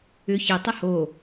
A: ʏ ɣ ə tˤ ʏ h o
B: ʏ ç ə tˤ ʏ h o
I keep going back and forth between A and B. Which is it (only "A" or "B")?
B